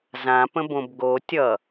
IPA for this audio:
z ã p ə̃ b õ b ɡ o tʲ ʌ

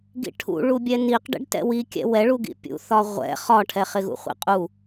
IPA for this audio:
ɡ ḭ ʈʰ ṵ ɭ u bʲ ɛ n i q ɖ ɛ̰ ɖ t ɛ̰ w i kʲ ɛ̰ w ɛ ɭ u ɡ ḭ pʲ ṵ θ ɒ ʁʷ ɛ̰ χ ɒ ʈʰ ɛ χ ɪ ɣ ṵ χʷ ḭ qʼ u

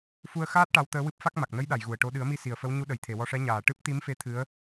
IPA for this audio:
f u˧ ə̯ x aː˦˥ t̚ ʈ a˧˥ w t̪ əː˧˥ w ɨ˦˥ p̚ f a˦˥ k̚ m a˨˩ k̚ n ə˧˥ j ɗ a˨˩˨ j ɣ u˨˩ ə̯ ʈ o˧˥ ɗ ɨ˨˩˦ ə̯ m i˧ s i˨˩ ə̯ f ə˧˥ w ɲ u˧˥ ɗ ə˨˩˨ j t̪ʰ e˨˩˨ w ɔ˧ ʂ ɛ˧˥ ɲ aː˨˩ ʈ ɨ˦˥ p̚ t̪ i˧˥ m f e˧˥ t̪ʰ ɨ˧˥ ə̯

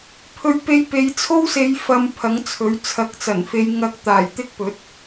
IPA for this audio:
pʰ ɵ˧ ɥ p e˧ j p e˨˧ j t͡sʰ o˥ w s e˨˧ j f ɐ˨ m pʰ ɐ˨˥ ŋ t͡sʰ ɵ˨˥ ɥ t͡sʰ ɐ˨˥ k̚ t͡s ɐ˨˩ n f e˨˧ j ŋ ɐ˧ k̚ t̪ aː˨˩ j t̪ ɪ˥ k̚ p ɵ˨˥ t̚

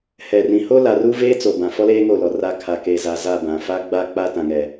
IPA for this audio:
h ɛ˨ r ĩ˨ h o˦ l a˨ r u˦ v eː˦ t͡s o˨ b ã˨ f ɔ˦ l eː˦ ŋ o˦˨ l ɔ˨ r a˦ kʰ a˨ k e˨ z a˨ z a˦˨ b ã˨ f a˦ ɡ͡b a˦ k͡p a˦ t ã˨ ŋ ɛ˨

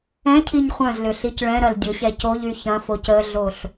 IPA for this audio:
ɛ̃ cʰ i ɲ χʷ œ̃ z l ʏ ɬ i c ɭ ɛ̃ ɾ ɐ l dʲ ʊ ɕ ɛ c o ʎ y ç ɐ̃ f o c ə ɮ o ɬ

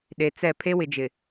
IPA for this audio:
ɗ e˨ t͡s ɛ˦˨ pʰ e˦ w ɪ˨ d͡ʒ ɪ˨

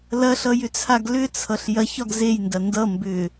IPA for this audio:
l ɐ ɬ ʌ j ʏ t͡sʰ a ɡ l ʏ t͡sʰ ʌ ɬ j ɐ ç ɒ ɡ z e j n d ɐ n d ʌ m b ʏ

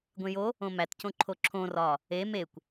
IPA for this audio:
ɡʷ ẽ j o | õ m æ t c õ ǃʰ o ǁʰ õ r ɒ | e m e kʷ

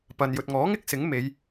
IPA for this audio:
p ɐ˨ n j ɵ˨ t̚ ŋ ɔː˨˥ ŋ ɪ˥ k̚ s ɪ˨˥ ŋ m e˨˧ j

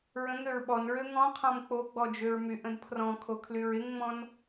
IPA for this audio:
ɹ ə̃ ŋ ø ɹ ɓ ɔ n ɹ ø ŋ ɔ̃ qʰ ɔ̃ m k͡p o ɡ͡b ɔ d͡ʒ ø ɹ m y ʔ ə̃ d pʰ r ɔ̃ kʰ o kʰ l y ɹ ɪ ŋ ŋ͡m ɔ̃ n

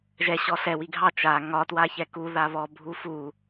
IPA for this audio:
ʒ ɛ ɕ ɔ ɬ ɛ w i ɡʱ ɑ t͡ʃ a ŋ ɒ t w a ç ɛ k u ð a β ɔ bʱ u f u

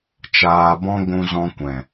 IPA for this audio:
t͡ʃ aː˧ b ɔ̃˦ ɡʷ ũ˧ z ɔ̃˧ kʷ ɛ̃˨

